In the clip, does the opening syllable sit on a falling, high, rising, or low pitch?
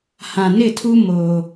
low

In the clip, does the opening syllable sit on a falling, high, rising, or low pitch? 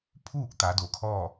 falling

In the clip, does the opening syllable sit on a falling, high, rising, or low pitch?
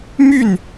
falling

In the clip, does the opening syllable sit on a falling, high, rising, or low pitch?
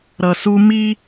low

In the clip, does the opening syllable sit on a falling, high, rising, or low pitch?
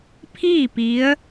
falling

